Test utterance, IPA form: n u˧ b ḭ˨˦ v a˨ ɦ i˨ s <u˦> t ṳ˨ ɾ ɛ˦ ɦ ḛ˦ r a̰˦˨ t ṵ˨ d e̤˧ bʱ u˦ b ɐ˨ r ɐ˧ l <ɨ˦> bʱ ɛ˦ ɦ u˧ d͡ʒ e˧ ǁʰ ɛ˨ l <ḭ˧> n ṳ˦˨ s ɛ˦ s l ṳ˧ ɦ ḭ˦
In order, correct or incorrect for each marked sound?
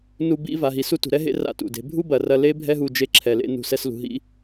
correct, incorrect, incorrect

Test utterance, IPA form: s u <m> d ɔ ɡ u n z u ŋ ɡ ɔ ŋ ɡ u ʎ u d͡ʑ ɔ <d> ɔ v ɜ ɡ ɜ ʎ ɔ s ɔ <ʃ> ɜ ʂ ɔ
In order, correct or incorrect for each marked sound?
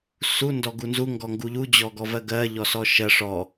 incorrect, incorrect, correct

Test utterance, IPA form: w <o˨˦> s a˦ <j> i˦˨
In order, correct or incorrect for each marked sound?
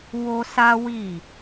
incorrect, incorrect

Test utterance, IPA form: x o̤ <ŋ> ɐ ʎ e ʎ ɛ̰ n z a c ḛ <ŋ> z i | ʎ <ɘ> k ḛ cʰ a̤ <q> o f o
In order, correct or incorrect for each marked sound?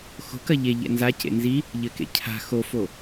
incorrect, incorrect, correct, incorrect

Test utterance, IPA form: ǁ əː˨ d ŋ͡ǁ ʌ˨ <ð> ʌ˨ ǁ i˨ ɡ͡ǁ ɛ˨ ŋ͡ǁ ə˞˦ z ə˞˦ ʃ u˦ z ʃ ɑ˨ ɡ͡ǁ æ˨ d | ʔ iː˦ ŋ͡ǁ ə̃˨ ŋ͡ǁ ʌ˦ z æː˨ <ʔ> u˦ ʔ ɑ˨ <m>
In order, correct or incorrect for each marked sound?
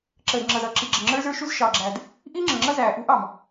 incorrect, correct, correct

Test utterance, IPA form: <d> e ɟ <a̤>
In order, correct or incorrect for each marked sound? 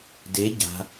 correct, correct

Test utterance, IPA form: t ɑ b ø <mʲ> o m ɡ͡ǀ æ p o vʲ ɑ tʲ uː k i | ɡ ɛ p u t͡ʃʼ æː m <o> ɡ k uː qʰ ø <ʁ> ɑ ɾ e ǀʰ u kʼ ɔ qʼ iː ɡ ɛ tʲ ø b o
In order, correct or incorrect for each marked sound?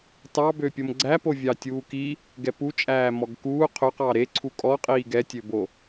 incorrect, incorrect, incorrect

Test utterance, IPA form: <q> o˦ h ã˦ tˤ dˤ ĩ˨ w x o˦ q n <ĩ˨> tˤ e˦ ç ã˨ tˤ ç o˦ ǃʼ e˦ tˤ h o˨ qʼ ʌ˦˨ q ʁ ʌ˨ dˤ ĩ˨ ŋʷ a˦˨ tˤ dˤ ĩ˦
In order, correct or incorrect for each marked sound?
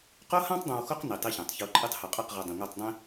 correct, incorrect

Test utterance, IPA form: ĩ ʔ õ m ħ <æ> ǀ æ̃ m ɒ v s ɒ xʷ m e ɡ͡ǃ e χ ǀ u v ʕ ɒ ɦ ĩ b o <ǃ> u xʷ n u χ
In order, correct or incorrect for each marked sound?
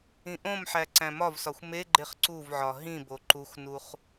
correct, correct

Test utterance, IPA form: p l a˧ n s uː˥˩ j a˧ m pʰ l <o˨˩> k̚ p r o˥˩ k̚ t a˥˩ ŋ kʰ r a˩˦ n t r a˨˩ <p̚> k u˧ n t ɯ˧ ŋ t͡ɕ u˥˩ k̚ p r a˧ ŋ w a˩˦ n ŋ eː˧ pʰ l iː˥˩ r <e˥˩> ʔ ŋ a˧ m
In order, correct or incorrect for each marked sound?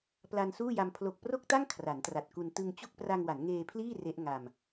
correct, incorrect, incorrect

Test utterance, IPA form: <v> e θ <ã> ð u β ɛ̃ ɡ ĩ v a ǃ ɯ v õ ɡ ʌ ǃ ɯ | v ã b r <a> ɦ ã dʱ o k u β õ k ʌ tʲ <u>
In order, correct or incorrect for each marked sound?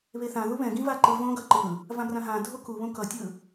incorrect, correct, incorrect, incorrect

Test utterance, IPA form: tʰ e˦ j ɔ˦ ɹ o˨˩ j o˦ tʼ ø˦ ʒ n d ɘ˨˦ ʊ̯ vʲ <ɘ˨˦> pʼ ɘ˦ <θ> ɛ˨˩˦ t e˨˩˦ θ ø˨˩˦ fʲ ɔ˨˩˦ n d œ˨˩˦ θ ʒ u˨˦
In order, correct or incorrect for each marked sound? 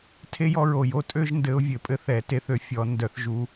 incorrect, correct

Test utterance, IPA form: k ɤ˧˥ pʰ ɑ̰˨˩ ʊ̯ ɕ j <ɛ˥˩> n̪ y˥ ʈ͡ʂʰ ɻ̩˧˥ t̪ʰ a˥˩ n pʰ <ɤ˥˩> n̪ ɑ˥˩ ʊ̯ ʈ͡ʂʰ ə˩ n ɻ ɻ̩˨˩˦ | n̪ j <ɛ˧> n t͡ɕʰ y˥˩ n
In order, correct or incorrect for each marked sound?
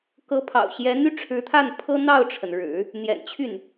incorrect, incorrect, incorrect

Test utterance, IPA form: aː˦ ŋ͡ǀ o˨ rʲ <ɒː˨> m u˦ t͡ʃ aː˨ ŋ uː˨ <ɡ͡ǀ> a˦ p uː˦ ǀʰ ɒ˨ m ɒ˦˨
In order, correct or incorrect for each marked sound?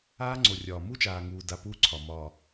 correct, incorrect

